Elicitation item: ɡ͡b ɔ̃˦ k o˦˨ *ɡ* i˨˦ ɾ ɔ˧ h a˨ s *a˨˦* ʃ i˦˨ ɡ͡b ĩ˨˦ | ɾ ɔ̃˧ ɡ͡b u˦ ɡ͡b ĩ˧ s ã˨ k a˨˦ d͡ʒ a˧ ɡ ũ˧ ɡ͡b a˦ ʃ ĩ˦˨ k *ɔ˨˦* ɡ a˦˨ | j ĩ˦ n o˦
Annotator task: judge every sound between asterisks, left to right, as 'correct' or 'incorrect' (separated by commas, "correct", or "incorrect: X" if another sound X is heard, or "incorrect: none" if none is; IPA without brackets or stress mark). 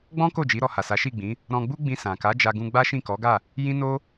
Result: incorrect: d͡ʒ, correct, correct